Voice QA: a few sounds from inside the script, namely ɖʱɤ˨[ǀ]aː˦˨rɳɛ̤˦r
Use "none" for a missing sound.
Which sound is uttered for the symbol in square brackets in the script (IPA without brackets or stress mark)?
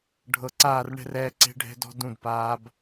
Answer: ǀ